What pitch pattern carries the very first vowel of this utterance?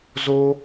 high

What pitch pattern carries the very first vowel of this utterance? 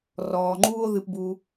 low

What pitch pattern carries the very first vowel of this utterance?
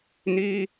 high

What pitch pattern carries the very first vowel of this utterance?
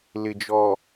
low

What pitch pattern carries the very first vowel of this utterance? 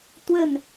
falling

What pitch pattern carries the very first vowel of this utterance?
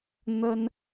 high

